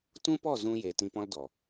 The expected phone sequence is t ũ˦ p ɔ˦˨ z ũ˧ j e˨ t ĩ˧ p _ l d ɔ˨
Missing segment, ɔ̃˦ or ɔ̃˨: ɔ̃˦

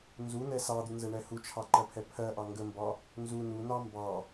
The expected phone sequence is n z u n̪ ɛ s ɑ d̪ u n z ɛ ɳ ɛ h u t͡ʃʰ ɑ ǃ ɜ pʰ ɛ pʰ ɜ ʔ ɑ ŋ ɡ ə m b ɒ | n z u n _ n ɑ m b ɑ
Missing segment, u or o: u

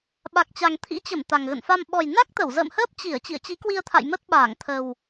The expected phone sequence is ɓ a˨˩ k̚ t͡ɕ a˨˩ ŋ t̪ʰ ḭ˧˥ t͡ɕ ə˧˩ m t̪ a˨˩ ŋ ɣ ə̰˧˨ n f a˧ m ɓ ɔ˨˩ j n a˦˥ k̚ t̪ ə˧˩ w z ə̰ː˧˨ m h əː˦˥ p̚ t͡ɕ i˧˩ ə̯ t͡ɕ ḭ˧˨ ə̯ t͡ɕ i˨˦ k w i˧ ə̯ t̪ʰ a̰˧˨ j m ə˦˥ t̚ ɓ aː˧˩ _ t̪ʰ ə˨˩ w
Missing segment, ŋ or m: ŋ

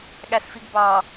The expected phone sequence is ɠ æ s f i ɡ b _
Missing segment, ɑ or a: ɑ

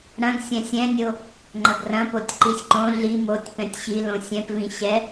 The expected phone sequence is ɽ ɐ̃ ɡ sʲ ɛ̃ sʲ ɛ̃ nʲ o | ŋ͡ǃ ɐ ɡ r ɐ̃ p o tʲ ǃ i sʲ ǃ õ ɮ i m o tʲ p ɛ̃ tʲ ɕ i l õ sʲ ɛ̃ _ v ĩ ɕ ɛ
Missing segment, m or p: p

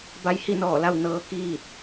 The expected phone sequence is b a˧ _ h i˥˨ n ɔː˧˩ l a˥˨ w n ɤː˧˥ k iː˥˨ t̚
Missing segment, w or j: j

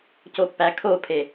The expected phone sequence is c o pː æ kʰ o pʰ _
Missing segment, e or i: e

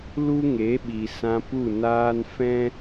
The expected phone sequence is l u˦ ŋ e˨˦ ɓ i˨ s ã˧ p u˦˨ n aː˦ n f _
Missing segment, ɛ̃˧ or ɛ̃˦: ɛ̃˦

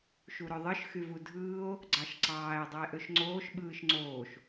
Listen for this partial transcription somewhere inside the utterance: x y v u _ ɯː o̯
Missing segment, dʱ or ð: dʱ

